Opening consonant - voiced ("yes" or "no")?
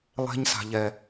yes